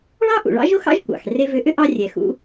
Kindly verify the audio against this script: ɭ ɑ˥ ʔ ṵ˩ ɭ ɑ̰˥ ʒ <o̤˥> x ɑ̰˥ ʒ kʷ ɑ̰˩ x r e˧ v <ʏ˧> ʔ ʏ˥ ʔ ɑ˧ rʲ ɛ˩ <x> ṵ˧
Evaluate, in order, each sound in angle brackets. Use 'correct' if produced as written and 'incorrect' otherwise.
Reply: incorrect, correct, correct

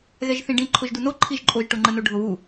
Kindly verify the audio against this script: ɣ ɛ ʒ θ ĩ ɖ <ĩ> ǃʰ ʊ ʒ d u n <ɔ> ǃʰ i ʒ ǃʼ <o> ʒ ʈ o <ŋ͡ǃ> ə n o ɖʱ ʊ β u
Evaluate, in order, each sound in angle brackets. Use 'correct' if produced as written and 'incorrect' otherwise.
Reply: correct, incorrect, correct, correct

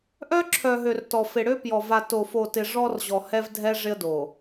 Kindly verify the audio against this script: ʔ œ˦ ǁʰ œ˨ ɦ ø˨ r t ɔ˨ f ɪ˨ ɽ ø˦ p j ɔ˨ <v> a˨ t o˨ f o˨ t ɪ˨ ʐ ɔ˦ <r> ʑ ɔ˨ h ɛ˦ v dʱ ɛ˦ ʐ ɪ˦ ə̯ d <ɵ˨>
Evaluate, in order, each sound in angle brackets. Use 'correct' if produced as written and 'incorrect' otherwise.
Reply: correct, correct, incorrect

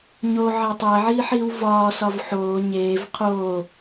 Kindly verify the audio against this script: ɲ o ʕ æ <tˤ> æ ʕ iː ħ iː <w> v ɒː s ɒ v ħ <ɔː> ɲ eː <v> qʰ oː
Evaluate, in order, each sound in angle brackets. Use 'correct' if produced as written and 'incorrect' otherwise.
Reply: correct, correct, incorrect, correct

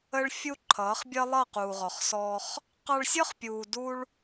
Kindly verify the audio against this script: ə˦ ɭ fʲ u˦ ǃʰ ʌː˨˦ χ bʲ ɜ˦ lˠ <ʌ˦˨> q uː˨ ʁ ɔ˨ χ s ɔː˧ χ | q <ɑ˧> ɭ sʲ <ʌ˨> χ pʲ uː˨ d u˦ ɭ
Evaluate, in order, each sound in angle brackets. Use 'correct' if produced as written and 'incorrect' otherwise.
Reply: correct, correct, incorrect

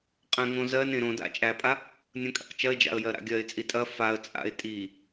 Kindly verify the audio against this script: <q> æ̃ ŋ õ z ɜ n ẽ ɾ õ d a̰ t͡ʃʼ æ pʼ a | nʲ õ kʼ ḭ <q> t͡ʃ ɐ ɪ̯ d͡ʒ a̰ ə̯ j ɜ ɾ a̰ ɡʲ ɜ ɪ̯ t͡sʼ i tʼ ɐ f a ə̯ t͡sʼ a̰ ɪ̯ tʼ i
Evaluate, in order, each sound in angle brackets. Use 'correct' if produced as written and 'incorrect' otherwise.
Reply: incorrect, correct

